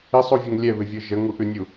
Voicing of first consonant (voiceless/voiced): voiceless